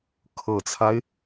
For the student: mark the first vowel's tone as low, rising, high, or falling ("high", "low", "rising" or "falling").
low